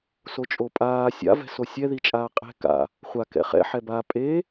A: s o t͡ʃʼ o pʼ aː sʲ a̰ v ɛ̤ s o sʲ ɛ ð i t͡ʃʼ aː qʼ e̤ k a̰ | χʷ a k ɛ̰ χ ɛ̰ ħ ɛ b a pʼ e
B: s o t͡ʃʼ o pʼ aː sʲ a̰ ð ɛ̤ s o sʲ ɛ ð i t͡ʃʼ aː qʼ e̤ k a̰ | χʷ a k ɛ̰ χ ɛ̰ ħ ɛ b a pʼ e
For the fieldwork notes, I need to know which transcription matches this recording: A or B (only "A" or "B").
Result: A